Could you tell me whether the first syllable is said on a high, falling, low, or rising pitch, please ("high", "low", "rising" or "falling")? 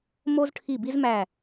high